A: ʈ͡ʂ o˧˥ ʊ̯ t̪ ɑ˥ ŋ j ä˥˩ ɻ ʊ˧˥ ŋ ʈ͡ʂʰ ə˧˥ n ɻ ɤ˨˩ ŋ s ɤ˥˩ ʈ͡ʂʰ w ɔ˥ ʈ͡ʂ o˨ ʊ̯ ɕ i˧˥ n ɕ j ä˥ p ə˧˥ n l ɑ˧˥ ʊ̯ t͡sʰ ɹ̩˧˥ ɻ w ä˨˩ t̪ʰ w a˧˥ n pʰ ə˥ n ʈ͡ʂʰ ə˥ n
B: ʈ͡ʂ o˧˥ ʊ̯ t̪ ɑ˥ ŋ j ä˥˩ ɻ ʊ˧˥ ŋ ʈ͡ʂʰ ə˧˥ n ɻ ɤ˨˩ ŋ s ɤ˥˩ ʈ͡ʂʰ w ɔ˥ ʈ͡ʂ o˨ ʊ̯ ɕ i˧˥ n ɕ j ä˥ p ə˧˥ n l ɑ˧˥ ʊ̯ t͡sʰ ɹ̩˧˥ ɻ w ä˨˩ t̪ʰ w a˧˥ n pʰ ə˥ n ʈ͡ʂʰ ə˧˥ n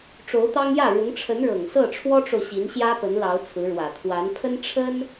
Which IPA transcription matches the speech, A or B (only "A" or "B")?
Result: A